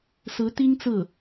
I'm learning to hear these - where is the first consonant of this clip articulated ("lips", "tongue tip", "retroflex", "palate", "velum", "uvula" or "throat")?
tongue tip